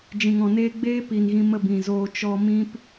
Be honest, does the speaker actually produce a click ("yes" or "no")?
no